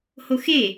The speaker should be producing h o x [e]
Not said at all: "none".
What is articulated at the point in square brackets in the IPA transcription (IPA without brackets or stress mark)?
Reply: e